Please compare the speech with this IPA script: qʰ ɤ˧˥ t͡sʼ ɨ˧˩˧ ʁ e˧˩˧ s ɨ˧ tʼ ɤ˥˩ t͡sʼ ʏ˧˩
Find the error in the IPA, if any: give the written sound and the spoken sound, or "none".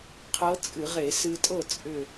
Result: none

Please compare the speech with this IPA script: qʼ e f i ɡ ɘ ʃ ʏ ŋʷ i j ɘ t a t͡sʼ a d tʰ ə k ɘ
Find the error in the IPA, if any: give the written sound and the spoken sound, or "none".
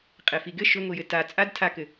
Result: ə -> a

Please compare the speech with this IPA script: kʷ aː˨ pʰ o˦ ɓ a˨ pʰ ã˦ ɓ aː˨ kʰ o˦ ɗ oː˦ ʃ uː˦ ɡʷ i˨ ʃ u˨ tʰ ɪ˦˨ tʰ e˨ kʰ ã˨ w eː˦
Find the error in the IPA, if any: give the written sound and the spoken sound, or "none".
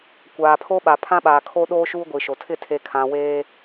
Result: u˨ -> o˨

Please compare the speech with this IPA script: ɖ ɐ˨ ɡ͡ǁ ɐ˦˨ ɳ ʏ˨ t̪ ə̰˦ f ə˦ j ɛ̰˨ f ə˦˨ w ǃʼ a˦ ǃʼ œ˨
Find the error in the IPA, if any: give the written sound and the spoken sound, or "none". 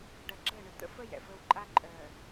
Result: none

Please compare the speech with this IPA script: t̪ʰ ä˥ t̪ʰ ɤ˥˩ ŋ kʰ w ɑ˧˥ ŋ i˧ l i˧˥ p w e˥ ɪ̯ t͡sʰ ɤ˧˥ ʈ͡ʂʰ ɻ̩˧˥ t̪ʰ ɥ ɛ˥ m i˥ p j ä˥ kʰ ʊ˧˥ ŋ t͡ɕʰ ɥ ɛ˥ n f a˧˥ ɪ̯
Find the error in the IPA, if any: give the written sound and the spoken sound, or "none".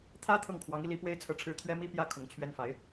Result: none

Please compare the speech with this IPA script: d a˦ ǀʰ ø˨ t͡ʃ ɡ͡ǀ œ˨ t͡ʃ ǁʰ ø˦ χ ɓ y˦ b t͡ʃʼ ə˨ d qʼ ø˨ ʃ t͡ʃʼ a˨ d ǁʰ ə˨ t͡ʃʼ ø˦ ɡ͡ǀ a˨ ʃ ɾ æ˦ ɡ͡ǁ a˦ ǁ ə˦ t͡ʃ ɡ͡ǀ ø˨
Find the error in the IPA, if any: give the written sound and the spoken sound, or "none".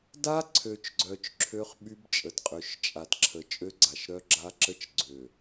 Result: æ˦ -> œ˦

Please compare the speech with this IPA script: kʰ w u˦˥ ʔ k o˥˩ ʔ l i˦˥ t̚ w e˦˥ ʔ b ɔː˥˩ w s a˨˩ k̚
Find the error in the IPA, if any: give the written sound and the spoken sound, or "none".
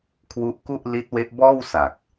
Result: o˥˩ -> u˥˩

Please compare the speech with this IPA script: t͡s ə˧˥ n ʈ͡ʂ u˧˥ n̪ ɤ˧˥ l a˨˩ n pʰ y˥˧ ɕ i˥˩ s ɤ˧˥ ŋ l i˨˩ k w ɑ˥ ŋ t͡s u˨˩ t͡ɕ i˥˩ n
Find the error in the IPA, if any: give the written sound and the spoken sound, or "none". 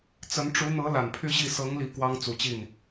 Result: none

